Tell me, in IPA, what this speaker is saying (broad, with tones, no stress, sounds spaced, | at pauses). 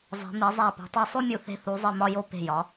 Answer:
zˤ e̤˩˧ m i˩˧ zˤ æ˧˩ p o̤˩˧ tˤ i˧˩ sˤ o˥ mʲ u˧˩ θ e̤˧ θ u˩˧ zˤ i˧˩ m ɒ˧ j o˧˩ p e̤˧˩ j ɒ˩˧